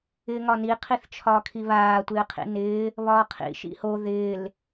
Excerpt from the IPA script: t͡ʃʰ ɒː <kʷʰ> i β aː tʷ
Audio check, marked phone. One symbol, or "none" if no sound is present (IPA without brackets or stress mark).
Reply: kʰ